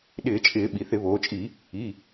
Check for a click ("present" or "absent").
absent